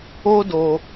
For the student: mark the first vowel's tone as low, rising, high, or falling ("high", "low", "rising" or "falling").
high